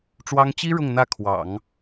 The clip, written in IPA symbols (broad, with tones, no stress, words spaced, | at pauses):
ʈ͡ʂwɑ˥ŋ t͡ɕi˥ ɻʊ˥˧ŋ n̪ä˥˩kʰwɑ̰˨˩˦ŋ